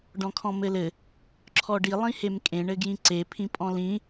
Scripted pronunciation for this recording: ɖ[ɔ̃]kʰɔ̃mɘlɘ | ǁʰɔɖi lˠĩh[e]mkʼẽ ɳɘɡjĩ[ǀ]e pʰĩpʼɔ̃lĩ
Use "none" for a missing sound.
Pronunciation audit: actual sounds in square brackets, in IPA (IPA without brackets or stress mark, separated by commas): ɔ̃, e, ǀ